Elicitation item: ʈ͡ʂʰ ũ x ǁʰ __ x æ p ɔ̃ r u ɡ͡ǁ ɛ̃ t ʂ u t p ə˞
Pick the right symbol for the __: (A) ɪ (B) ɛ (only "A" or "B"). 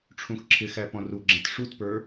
A